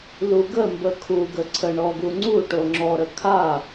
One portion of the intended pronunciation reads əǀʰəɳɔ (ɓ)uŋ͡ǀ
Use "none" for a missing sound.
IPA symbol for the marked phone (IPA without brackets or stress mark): ɡ